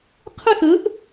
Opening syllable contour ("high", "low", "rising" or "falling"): falling